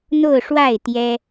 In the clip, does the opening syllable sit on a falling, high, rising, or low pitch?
falling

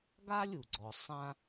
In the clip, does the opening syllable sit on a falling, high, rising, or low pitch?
high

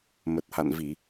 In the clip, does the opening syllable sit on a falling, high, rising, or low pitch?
low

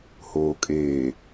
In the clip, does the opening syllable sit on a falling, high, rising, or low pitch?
low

